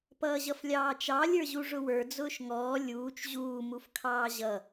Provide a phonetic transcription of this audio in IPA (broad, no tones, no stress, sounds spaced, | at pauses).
p ʌː ʑ ʌ f lʲ ɑː t͡ʃ ɑ lʲ ə˞ ʑ u ʐ ʊ w ə˞ d͡z ʊː ʃ ŋ ɔː lʲ uː t͡ʃ ʑ uː m u f kʰ ɑː ʑ ʌ